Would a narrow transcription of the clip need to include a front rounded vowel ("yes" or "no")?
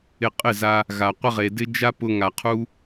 no